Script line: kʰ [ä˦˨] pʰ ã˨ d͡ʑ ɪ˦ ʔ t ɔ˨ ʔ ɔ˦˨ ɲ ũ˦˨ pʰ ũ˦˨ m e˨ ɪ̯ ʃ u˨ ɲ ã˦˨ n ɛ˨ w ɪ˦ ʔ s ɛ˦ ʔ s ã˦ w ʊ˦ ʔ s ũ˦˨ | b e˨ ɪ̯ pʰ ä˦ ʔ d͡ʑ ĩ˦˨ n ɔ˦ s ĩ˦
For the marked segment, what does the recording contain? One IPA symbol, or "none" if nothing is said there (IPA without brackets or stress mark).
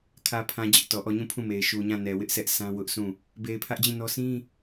ä˨